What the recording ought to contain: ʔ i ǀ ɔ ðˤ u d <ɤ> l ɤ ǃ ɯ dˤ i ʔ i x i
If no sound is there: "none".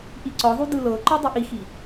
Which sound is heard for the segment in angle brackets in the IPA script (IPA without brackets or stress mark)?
ɯ